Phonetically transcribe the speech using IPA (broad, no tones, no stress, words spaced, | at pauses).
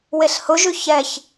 weɬhʊʒʉ çɛç